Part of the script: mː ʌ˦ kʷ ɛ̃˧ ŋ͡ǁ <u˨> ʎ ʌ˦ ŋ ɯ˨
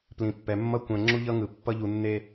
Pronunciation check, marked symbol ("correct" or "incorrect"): incorrect